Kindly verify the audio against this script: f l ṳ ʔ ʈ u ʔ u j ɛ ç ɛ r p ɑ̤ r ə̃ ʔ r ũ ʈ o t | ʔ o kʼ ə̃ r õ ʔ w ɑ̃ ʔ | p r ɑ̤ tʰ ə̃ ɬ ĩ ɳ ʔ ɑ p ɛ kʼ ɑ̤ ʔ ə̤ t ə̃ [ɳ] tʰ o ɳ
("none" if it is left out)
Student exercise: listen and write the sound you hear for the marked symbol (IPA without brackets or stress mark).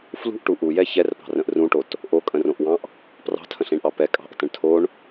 ɳ